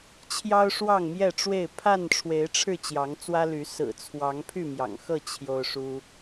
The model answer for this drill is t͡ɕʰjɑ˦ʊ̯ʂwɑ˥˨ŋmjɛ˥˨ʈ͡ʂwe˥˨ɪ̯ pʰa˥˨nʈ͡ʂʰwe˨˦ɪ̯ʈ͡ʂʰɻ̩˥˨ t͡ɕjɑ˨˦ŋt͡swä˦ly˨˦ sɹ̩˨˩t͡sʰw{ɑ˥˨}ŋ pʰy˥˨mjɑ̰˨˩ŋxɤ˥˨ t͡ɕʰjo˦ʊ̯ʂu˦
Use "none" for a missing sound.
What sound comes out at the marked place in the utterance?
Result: ɑ˨˦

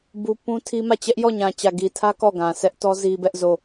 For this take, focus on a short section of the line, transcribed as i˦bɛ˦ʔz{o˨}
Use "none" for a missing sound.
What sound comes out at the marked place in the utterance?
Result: o˦˨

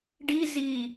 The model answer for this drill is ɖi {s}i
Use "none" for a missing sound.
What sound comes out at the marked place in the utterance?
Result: z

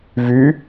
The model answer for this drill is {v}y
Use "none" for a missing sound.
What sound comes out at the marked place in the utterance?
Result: v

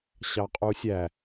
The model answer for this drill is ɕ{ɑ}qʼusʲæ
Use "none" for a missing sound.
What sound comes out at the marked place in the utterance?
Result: ɑ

